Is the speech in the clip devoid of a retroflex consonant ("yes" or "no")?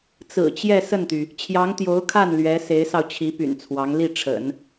no